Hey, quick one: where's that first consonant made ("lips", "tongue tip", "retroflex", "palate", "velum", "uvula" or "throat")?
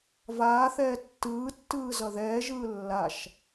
lips